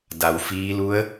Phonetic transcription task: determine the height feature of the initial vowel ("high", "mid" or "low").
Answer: low